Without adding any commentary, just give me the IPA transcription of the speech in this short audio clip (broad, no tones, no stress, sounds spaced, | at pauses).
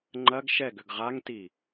ŋ͡ǃ ɐ ɡ ʃ ɛ ɡ ʏ ɡ ʁ a ŋ t i